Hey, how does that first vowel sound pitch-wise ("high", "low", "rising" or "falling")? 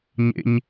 high